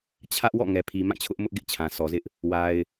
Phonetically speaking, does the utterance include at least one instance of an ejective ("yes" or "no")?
no